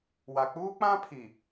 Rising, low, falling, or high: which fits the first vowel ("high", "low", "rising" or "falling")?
low